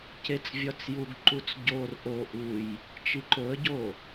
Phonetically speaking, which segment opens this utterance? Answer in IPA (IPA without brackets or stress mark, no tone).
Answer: c